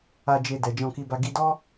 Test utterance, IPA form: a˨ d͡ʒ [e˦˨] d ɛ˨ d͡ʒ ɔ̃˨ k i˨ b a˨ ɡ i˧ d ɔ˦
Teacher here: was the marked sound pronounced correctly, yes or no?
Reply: no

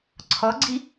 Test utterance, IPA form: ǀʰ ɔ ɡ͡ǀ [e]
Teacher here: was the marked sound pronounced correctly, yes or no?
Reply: no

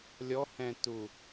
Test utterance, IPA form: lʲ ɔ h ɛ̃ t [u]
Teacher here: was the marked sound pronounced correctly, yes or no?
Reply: yes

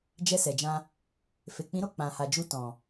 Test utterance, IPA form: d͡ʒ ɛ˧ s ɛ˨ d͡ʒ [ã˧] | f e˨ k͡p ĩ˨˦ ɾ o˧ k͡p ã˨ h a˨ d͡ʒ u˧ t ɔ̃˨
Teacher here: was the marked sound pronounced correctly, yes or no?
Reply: yes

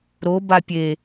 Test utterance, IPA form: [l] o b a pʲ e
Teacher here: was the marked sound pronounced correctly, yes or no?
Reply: no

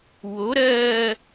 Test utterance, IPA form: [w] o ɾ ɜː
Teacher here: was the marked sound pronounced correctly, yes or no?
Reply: yes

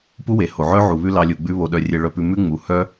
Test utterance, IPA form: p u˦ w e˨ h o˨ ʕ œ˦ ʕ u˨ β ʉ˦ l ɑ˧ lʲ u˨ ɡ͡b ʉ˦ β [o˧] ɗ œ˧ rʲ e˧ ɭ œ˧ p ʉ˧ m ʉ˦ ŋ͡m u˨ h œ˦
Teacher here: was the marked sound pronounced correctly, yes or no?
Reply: yes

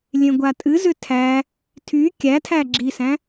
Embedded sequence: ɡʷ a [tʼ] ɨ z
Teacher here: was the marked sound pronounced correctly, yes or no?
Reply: yes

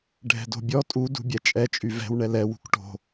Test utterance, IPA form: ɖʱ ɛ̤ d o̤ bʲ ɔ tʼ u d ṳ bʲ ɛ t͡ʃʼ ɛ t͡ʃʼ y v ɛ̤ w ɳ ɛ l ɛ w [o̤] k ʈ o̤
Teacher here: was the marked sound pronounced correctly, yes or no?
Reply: no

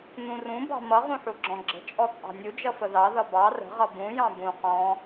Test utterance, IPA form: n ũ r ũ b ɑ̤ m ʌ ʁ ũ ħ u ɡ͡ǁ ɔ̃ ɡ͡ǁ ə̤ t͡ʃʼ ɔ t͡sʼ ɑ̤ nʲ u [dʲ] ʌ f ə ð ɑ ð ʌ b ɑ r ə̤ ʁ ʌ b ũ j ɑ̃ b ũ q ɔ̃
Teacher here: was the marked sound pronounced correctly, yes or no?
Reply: no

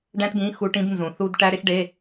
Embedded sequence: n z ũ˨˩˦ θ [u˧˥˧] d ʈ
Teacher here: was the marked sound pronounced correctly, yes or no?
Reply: yes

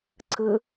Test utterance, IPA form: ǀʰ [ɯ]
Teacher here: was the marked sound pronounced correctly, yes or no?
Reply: yes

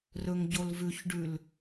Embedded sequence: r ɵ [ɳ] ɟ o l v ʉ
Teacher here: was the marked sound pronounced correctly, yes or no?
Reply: no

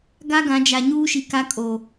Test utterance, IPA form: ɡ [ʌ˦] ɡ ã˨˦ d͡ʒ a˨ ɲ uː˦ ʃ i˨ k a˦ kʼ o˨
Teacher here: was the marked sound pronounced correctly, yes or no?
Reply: no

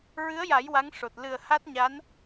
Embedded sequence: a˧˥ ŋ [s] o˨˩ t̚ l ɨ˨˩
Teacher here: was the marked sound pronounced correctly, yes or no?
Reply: no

